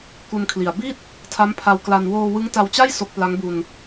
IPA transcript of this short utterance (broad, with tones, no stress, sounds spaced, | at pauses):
k u˧ n kʰ l i˨˩ a̯ b i˥˩ t̚ | tʰ a˦˥ m pʰ a˧ w k l a˧ n w oː˧ w ɯ˦˥ ŋ t a˧ w t͡ɕ a˥˩ j s o˦˥ k̚ p l a˦˥ ŋ b u˧ n